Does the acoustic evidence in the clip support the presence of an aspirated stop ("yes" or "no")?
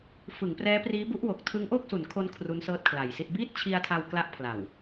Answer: yes